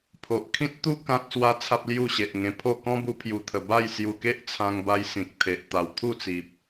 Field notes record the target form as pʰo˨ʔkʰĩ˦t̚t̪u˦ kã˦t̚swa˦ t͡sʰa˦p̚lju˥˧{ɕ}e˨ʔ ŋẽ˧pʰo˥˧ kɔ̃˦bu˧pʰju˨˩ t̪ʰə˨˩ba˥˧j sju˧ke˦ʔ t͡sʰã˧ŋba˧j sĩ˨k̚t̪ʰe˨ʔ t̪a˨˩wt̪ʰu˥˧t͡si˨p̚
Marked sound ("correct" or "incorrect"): correct